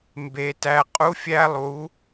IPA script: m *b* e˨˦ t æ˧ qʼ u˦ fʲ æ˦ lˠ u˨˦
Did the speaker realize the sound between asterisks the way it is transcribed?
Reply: yes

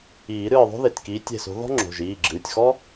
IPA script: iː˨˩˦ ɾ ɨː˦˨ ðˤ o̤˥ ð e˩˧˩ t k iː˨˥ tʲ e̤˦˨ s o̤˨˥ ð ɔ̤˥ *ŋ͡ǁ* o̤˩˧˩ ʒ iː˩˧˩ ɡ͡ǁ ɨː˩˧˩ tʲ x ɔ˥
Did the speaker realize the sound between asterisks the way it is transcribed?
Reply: yes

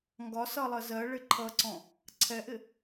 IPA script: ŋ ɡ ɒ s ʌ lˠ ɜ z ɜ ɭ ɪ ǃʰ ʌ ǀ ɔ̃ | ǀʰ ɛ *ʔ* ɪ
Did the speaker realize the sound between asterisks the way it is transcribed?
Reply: yes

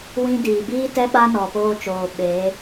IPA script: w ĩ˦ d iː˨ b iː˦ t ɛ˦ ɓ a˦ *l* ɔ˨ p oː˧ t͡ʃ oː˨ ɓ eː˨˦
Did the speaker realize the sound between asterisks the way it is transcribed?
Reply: no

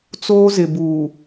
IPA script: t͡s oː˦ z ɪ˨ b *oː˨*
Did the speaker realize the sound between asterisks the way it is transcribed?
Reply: no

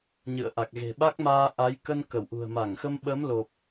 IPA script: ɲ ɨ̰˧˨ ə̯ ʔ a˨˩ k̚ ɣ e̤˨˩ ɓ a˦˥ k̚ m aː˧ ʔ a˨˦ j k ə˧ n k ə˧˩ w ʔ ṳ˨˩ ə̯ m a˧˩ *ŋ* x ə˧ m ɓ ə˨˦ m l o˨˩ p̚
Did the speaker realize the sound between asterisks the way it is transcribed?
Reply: yes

